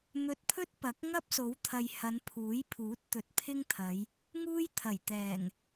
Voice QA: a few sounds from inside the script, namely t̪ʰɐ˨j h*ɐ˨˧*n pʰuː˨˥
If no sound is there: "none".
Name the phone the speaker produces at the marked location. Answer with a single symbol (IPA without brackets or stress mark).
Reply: ɐ˨˧